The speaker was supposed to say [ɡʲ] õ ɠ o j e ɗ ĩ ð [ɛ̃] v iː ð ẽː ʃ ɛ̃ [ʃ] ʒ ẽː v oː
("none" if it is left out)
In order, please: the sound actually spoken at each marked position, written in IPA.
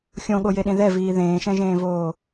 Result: xʲ, ɛ, none

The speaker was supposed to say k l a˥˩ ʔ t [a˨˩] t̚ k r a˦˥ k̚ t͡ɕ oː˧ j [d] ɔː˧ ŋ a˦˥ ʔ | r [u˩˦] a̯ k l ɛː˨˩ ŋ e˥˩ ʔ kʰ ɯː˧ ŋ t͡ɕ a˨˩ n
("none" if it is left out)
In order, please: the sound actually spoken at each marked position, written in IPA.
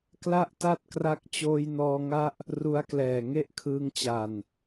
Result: a˥˩, n, u˦˥

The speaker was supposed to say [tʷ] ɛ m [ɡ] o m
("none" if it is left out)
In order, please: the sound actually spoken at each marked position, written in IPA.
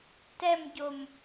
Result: t, ɟ

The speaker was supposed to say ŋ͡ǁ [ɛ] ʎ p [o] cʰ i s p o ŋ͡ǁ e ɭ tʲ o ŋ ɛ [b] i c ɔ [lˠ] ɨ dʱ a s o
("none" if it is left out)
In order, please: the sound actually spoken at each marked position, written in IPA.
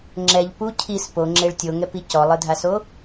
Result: ɛ, u, p, lˠ

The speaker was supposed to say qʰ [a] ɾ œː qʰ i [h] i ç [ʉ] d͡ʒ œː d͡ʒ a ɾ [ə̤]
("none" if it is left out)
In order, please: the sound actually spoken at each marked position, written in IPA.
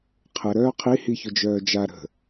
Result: ə, h, ʊ, ə̤

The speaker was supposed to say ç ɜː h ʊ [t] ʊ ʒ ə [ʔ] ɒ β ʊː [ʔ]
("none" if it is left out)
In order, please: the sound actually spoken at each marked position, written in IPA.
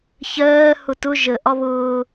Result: t, ʔ, none

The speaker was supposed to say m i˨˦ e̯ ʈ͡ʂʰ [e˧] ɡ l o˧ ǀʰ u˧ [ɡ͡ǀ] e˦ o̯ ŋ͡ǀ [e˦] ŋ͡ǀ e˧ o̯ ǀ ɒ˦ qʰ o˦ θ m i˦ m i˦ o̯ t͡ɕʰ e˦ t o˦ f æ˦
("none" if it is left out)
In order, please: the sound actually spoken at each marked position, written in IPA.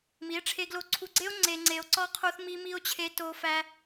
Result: e˧, ɡ͡ǀ, e˧

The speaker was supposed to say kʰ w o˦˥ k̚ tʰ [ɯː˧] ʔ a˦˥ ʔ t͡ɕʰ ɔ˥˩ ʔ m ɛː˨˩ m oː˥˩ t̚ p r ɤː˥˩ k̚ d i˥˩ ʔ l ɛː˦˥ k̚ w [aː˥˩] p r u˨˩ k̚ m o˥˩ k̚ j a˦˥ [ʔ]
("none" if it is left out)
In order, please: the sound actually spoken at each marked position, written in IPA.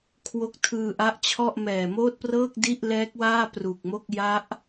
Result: ɯː˧, aː˥˩, ʔ

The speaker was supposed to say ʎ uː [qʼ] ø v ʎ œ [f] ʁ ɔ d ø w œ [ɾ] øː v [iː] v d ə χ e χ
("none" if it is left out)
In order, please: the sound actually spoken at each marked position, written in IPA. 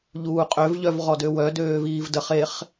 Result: qʼ, v, d, iː

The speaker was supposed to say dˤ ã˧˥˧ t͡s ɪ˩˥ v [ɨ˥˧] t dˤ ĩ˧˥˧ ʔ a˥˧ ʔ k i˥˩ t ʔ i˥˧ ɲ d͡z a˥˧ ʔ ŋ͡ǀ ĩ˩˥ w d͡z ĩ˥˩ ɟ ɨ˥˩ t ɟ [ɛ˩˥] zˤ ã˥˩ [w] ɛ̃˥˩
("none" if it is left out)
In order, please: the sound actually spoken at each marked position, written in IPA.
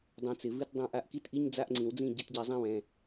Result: ɨ˥˧, ɛ˩˥, w

